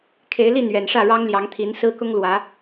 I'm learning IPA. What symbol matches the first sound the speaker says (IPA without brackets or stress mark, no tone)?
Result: kʰ